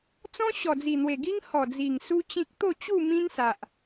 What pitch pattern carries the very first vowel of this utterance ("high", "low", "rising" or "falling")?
high